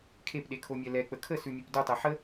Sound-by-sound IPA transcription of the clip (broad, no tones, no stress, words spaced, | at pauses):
kʰepɗekʰomʲɛ lɛk͡pə kʰəsʉmʲep dutˤɛ ħə